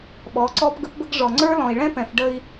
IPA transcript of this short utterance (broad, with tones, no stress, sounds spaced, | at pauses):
ɓ ɔ˨˦ ǀ ɔ˦ p ɡ ə˦ p b ə˦ ɡ ʐ ɔ˨ ŋ͡ǀ ə˞˦ l ɔ̃˨ i̯ ɭ ɛ̃˦ p ɛ̃˨ f ɖ ə˦ i̯